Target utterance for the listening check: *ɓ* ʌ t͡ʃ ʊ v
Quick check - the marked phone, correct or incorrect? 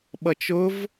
correct